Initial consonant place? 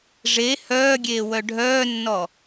retroflex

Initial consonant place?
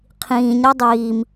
uvular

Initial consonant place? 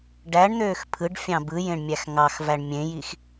retroflex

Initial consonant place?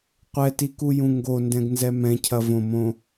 uvular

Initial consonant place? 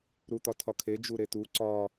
alveolar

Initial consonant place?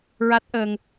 alveolar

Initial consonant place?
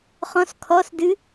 uvular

